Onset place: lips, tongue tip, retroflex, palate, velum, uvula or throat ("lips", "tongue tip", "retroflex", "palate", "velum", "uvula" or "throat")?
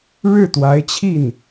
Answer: retroflex